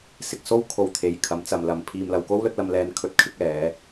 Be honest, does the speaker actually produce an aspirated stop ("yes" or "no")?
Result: yes